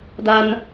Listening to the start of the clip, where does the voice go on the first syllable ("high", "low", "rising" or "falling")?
high